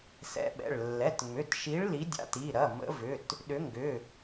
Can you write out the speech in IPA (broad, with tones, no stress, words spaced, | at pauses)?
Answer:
sɛ̰˨˦ɓɛ̰˩˧˩ɭ lːɛ˩˧˩tŋ͡mʏ˩˧˩tʃi˨˦ɭ li˨˦dʲa̰˨˦ti˩˧˩ɾɐ˩˧˩ mə̰˨˦vʏ˩˧˩t | ɗʏ˨˦ŋɡʏ˩˧˩